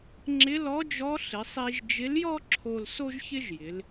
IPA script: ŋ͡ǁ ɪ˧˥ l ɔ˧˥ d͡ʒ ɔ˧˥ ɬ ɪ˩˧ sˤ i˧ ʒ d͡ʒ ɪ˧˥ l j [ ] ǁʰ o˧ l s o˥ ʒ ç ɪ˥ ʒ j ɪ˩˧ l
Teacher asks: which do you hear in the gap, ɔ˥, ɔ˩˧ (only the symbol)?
ɔ˥